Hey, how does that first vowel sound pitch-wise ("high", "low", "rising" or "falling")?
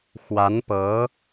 rising